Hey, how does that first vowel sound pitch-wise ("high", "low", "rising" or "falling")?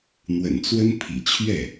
low